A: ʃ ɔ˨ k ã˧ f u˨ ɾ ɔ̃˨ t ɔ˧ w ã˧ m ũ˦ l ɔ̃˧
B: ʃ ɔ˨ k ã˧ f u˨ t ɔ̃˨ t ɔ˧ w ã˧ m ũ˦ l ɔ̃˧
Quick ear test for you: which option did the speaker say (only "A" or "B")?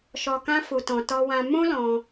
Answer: B